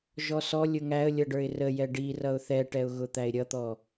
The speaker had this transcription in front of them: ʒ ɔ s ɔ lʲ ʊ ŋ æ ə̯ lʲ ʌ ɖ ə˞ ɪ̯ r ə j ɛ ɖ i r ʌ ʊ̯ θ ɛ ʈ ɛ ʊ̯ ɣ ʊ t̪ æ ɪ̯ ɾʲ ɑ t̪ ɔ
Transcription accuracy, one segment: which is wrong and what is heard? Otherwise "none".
ɑ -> ʌ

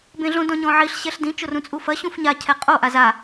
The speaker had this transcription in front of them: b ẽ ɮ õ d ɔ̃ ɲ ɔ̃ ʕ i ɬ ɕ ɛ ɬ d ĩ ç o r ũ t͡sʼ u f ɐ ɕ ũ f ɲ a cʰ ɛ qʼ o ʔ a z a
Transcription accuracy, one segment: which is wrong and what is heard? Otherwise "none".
ç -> t͡ʃ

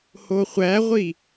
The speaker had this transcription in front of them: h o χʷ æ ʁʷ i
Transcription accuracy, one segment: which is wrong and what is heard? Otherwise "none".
none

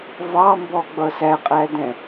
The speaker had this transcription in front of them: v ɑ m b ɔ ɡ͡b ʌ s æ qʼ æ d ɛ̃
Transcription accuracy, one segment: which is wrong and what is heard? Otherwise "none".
none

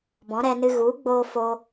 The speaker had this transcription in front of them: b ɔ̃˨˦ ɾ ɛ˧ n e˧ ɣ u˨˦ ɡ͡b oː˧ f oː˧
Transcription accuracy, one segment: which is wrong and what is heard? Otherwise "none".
e˧ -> ɨ˧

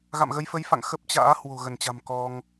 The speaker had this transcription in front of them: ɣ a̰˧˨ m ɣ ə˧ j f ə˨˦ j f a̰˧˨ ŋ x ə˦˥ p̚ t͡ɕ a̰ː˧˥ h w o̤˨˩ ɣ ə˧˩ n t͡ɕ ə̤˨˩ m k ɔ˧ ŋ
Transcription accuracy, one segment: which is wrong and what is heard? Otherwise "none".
ə̤˨˩ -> a̤˨˩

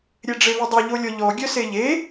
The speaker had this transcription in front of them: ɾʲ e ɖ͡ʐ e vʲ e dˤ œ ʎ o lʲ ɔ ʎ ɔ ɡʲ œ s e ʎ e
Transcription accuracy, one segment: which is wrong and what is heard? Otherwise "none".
vʲ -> v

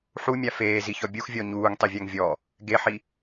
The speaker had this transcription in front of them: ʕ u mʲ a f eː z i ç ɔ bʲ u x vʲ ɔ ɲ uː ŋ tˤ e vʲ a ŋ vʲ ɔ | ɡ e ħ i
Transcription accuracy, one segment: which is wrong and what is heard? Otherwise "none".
ʕ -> ħ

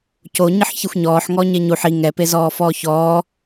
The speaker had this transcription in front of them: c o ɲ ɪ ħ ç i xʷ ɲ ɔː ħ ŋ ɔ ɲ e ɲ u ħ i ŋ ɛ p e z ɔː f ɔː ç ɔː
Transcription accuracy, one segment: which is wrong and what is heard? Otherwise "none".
none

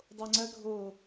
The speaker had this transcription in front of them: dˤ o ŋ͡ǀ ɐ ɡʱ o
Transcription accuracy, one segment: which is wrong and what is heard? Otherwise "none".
none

